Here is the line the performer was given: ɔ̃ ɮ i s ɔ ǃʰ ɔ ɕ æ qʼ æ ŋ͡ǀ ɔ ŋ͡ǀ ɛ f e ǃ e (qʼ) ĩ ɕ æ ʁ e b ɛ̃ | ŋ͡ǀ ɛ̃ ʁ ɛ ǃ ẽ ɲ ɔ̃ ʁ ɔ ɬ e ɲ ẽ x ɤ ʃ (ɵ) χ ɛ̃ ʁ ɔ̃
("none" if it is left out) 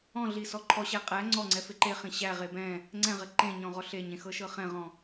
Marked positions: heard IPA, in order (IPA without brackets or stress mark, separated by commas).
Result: χ, ɤ